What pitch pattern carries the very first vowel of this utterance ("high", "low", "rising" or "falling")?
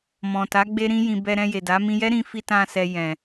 low